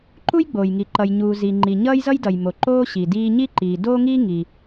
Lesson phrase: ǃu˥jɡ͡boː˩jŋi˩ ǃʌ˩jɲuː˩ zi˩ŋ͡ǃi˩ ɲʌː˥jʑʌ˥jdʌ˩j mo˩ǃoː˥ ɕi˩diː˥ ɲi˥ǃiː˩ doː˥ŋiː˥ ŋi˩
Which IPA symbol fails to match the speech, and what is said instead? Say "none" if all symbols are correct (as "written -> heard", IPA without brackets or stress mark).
ʑ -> z